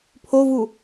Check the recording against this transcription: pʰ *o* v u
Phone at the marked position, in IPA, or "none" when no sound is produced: o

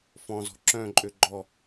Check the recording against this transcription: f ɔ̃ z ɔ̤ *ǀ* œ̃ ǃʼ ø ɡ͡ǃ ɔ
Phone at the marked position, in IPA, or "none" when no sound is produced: ǁ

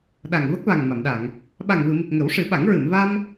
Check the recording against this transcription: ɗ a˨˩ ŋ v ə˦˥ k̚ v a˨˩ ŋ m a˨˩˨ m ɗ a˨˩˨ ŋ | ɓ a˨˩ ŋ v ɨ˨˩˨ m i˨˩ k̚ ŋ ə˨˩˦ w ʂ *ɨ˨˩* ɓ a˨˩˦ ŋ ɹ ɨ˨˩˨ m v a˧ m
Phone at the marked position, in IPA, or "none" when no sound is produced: ɨ˨˩˦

